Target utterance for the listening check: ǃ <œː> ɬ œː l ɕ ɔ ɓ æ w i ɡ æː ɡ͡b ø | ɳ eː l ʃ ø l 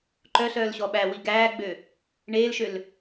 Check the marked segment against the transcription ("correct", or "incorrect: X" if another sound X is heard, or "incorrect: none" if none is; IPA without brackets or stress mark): incorrect: œ